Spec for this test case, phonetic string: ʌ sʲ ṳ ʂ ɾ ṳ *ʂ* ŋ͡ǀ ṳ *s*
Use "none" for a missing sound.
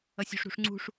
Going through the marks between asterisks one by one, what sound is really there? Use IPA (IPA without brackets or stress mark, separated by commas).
ʂ, ʂ